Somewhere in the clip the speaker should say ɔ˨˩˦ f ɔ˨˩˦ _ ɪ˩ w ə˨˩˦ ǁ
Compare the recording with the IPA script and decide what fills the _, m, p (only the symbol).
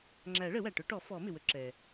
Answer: m